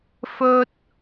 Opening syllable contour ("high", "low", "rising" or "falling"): high